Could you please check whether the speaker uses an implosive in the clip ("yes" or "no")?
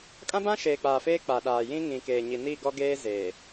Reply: yes